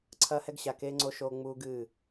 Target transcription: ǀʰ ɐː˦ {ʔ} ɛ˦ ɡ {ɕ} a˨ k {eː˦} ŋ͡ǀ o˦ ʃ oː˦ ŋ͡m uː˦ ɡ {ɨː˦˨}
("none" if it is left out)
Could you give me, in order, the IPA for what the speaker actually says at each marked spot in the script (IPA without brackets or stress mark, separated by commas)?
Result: h, ɕ, eː˦, ɨː˦˨